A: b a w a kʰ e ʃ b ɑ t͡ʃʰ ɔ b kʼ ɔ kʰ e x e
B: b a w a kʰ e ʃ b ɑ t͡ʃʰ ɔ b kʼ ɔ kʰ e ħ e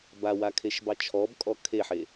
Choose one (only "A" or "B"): B